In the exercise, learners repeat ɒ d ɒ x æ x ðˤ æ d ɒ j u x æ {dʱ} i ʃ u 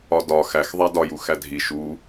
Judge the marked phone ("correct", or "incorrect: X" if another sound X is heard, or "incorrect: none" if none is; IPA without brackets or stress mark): correct